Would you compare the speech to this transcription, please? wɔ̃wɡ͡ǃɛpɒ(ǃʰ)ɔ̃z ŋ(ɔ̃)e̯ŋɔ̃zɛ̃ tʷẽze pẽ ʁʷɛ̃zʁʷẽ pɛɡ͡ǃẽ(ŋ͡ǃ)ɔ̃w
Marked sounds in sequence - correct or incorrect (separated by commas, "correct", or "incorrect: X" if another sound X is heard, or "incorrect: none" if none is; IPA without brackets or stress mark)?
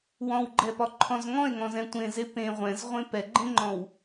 correct, correct, correct